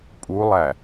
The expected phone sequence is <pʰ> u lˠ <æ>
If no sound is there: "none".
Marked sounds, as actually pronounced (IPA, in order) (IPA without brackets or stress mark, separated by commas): pʼ, æ